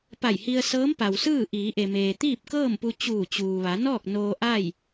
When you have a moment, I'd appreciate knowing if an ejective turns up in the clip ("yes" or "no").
no